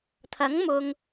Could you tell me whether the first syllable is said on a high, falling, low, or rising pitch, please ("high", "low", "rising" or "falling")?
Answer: rising